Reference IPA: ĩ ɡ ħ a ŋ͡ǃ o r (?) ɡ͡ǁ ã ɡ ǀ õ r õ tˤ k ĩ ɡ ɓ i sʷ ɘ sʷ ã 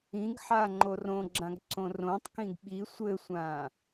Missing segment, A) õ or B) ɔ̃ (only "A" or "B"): A